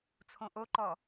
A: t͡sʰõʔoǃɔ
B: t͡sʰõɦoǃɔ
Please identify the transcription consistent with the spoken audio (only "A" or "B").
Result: A